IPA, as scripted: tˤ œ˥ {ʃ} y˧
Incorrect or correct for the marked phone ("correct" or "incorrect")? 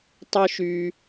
correct